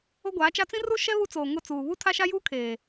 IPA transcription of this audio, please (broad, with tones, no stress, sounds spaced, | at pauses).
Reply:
o˦ ɡʷ aː˨˦ t͡ʃ a˦ t͡s ĩ˦ r u˦ ʃ ɛ˦ β u˦ t͡s oː˨ ŋ ʊ˦˨ t͡s uː˨ β u˦ tʰ a˦ ʃ a˦ j uː˦ kʰ eː˨